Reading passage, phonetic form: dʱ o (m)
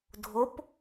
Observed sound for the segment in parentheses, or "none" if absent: p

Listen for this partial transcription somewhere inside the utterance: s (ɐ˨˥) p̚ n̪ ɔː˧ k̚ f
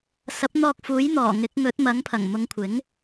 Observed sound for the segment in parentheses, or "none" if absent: ɐ˨˥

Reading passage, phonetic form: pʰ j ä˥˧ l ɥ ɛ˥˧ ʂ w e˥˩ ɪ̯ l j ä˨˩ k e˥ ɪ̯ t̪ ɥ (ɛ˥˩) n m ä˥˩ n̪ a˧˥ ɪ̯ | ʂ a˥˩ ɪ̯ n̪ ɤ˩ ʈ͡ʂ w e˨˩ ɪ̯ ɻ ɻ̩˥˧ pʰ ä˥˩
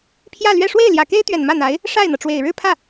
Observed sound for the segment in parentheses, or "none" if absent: ɛ˨˩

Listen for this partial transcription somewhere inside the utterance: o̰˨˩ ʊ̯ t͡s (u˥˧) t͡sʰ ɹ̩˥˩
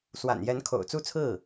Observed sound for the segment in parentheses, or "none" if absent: u˥˧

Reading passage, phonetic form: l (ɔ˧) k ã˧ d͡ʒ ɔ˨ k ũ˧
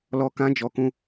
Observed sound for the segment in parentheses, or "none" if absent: ɔ˧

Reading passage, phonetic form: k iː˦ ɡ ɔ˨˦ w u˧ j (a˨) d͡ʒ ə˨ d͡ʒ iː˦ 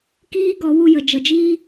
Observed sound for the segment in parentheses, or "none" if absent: ə˨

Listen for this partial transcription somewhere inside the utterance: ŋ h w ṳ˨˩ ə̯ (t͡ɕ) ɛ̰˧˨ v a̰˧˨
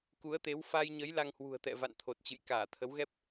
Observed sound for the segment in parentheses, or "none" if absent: t̪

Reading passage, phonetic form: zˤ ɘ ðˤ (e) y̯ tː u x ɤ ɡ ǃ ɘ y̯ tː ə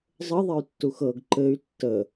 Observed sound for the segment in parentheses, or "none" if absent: e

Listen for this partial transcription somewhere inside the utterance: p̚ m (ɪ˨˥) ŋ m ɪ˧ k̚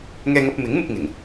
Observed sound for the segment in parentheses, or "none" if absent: ɪ˨˥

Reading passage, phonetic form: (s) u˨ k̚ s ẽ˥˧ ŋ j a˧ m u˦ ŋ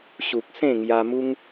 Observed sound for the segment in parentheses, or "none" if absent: ɕ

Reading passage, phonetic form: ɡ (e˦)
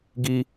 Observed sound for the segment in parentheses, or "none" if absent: i˦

